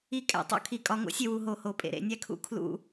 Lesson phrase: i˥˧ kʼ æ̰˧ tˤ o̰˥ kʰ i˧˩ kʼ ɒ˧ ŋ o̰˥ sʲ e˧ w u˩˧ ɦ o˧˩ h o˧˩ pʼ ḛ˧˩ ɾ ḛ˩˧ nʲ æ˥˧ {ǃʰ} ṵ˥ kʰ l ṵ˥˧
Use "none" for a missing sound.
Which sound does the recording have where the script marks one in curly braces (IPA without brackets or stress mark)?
kʰ